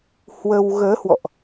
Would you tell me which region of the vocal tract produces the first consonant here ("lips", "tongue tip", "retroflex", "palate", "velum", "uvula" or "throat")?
throat